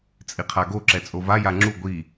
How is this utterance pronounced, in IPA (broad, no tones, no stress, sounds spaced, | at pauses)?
t͡sʼ i qʰ a ɡ o ǁ ɛ t͡sʼ o v a j a ŋ͡ǁ u ɡʷ i